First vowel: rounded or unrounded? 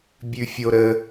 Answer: rounded